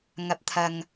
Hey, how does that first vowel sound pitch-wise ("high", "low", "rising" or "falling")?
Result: rising